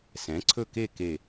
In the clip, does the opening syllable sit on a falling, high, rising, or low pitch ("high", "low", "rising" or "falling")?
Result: rising